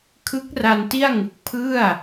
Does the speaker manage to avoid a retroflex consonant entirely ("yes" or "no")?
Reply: yes